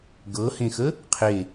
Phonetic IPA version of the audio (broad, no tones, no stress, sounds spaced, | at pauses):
ɡ ɤ h ẽ x ə | qʰ e